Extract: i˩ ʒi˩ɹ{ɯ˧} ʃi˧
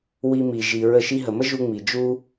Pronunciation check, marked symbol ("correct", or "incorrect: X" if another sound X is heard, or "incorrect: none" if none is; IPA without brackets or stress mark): incorrect: ə˧